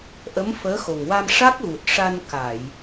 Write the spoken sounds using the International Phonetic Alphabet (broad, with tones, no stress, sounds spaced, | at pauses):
ʔ ə˧˥ m f əː˧˥ x o˨˩ ŋ w a˧ m ʂ a˦˥ k̚ ɣ u˨˩ t̚ ʂ a˧ n k a˨˩˨ j